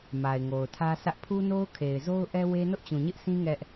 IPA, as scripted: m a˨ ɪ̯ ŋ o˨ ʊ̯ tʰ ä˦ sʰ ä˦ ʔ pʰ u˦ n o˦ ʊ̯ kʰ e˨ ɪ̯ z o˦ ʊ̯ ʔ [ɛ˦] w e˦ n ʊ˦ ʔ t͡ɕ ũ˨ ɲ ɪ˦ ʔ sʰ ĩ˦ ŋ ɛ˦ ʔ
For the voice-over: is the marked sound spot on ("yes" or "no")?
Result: yes